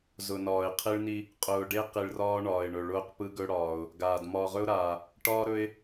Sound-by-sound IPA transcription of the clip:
zʊ˨nɒː˨ɪ̯ qʰi˦ɭni˦ | qʼʊː˨ɖe˦ qi˨ɭrɒː˦ ɳɒː˨ɪ̯ɳɵ˨ ɭʊː˦qpɯ˦ɡɵ˦ɽɒː˨ʊ̯ | ɡaː˨d mɒː˨ʁɵ˦ʊ̯ɾaː˨ | ʈɒː˦ɾɵ˦ɪ̯

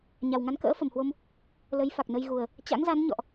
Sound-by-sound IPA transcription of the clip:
ɲa˨˩wŋa˨˦nkə̰ː˧˥ fə˨˩mhwo˧m | lə˨˦jfa˨˩k̚nə˧jɣu˨˩ə̯ | t͡ɕa̰˧˥ŋza˨˦n ɲɔ̰˧˨ʔ

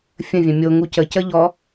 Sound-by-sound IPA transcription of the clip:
fʲə̃vʲœ̃ mʲo ŋucə cəʎɔ

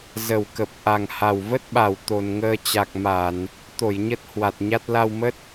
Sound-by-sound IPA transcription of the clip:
zə˨˩wkə˨˩p̚ ʔa˨˩ŋha˨˩wvə˦˥t̚ɓa˨˩w t̪o˨˩nŋəː˧t͡ɕa˨˩k̚ ma˧˩˨n | t̪o˧˩jɲə˦˥t̚ hwa˨˩t̚ɲa˦˥t̚ la˧wmə˦˥t̚

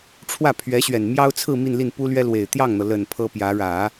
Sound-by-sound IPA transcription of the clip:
ʈ͡ʂʰwä˥˩ pʰɥɛ˧˥ɕɥɛ˨˩nmjɑ˥ʊ̯t͡sʰɹ̩˥˧ mi˥˧nli˥˩npu˥ lɥɛ˥lwe˨˩ɪ̯ t̪jɑ˥˩ŋn̪ɤ˩lə˨˩n pʰɤ˥pjä˧˥ ɻä˨˩˦

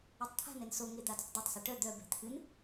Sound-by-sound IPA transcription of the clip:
etˤt̪ʰa̤nɛn soŋe d̪adɛ̤tˤdatˤsœ ʈœ d̪œbɛ̤ t̪ʰɨn

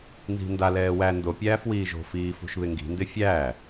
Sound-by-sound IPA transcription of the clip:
nzi̤nda lɛːwæ ndo pʲæːfwiːʒo̤ fiːfṳʃβɪŋɡi̤ ndɪfʲæː

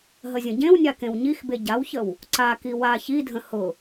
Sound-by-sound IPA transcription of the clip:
ɦəzʲə̃ɟẽwnʲa kẽwɲixbe ɟawçəw | ǀaki wa çidʱə̃ hʊ

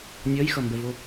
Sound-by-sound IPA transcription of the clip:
nʲʌjxʌmbɛvo

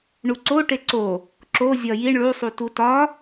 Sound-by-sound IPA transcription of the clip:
ɳuǀo ʈeǀo | ǁo zʲɒjiɳ ɭusˤu tutɒ

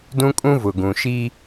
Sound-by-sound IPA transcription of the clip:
dũ˦kʼũ˦vʊ˨ɡũ˨ ʃi˦

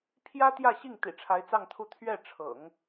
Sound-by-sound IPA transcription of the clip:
pʰjä˥ t̪jä˥˧ɕi˥˩ŋ t̪ḭ˨˩ʈ͡ʂʰa˧˥ɪ̯t͡sɑ˥˧ŋt̪ʰu˥˧ t̪ʰɥɛ˥˩ ʈ͡ʂʰɤ̰˨˩˦ŋ

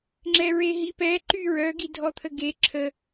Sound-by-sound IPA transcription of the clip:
ŋ͡ǁɛɹeɦipɛ ǃyɹœɡidʱɔ t̪ʰəɡe ǁʰə

